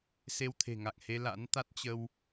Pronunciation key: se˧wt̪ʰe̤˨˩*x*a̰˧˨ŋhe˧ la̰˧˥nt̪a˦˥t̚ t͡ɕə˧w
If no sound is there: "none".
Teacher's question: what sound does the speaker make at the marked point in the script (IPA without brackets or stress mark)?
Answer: ŋ